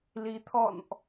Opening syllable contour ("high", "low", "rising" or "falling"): rising